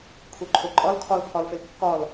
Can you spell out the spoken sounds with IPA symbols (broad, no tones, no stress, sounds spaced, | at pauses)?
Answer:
kʰ u ǃʰ o ǃʼ ɒ l kʰ ɒ l pʰ ɒ l f e l kː ɒ l